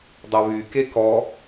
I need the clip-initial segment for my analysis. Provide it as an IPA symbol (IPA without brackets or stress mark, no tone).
dˤ